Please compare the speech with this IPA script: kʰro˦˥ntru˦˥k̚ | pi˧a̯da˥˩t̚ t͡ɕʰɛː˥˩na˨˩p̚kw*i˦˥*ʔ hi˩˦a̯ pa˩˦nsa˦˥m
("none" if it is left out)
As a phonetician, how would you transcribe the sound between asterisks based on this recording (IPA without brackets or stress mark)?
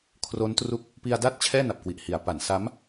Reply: i˨˩